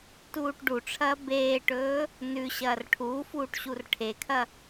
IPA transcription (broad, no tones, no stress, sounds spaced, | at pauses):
t uː ʈ ɖ u ʈ͡ʂʰ ɐː b eː ʈ ɵː | n ʉ ɕ ɐː r ʈʰ uː f uː ʈ ɕ u r ʈʰ e kʰ ɐ